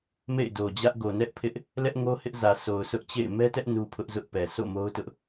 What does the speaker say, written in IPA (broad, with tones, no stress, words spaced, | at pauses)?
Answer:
mḛ˦˨ɪ̯do˨d͡ʑä˦ʔ ɡo˨nɛ˦ʔpʰɪ˦ʔ | lɛ˦ʔŋo˦hɪ˦ʔzä˨ sʰo˨ʊ̯sʰʊ˦ʔt͡ɕḛ˦˨ɪ̯ mɛ˦tɛ˦ʔ nu˦pʰʊ˦ʔzʊ˦ʔpɛ˨ sʰo̰˦˨mo˦ʊ̯tʊ˦ʔ